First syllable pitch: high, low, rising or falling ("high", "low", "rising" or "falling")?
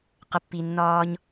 low